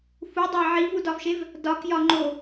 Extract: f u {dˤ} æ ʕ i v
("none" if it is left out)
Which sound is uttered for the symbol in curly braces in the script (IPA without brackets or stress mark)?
dˤ